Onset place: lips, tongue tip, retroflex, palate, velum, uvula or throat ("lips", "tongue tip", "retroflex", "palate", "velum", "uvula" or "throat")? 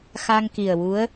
velum